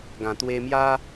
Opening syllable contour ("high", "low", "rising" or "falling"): low